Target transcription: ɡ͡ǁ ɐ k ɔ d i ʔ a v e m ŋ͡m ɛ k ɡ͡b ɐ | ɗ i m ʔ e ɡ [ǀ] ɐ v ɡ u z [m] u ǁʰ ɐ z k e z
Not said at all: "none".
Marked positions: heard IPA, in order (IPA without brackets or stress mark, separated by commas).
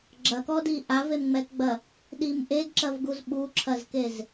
ǁ, ɓ